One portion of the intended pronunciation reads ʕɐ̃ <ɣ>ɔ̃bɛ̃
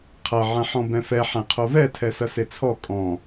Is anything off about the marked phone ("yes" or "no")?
yes